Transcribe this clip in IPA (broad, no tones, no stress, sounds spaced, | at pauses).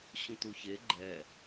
ɕ ũ t u ç e ɡ͡ǃ ɛ